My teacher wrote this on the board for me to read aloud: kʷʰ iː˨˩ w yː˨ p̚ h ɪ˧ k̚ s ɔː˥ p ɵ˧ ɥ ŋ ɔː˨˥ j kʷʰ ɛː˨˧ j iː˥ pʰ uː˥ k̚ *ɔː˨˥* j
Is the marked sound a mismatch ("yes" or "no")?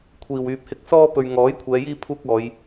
yes